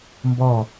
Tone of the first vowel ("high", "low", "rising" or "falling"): falling